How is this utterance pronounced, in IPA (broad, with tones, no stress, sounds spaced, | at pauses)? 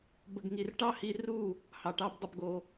b ə˨ ɡ ŋ i˨ r ʈ ɑ˦ h i˧ r u˦˨ | h ɑ˨ ʈ ɑ˧ b dˤ ə˧ b ɡ o˧